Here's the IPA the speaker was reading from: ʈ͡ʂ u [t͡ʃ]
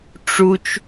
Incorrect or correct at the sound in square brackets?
correct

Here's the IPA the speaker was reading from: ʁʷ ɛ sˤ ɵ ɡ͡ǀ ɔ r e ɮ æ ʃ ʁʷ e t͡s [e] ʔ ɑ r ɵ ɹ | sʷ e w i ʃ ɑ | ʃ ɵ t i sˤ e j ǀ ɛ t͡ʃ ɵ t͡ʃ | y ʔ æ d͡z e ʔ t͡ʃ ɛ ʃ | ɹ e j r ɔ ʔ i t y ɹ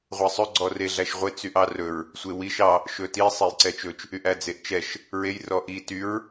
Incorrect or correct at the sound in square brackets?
incorrect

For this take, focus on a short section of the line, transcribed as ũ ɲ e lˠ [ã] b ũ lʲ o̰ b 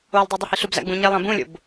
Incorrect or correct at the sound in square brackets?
correct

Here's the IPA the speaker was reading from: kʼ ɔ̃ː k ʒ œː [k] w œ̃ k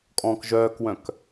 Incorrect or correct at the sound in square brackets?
correct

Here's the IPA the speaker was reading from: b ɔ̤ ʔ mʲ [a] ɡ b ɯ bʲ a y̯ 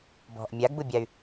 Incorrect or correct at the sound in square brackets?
correct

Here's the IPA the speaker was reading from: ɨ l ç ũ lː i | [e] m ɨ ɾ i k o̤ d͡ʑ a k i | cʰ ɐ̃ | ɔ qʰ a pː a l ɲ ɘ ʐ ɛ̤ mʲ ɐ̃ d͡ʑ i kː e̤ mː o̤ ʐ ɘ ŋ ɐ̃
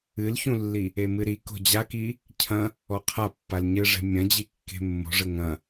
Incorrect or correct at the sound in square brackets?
correct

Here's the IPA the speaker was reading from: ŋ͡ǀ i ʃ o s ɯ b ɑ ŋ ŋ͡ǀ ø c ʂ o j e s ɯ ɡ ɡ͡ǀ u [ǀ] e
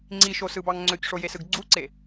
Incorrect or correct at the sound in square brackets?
correct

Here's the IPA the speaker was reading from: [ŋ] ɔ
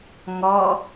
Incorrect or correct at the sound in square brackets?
correct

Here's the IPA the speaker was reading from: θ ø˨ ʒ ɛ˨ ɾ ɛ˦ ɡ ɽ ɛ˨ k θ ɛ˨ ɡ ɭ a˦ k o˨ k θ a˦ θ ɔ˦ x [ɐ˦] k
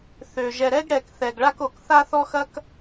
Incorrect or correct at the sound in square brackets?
correct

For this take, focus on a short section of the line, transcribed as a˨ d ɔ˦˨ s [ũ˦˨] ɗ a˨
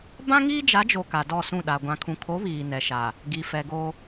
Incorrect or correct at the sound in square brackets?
correct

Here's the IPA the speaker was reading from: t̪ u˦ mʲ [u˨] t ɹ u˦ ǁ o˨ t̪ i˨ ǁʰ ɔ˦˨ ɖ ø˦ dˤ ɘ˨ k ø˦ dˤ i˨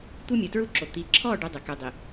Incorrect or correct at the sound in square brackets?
correct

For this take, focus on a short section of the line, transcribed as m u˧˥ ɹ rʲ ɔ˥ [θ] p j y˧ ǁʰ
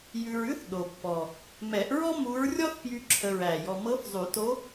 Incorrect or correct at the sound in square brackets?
correct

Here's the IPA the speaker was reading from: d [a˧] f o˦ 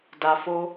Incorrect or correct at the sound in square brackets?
correct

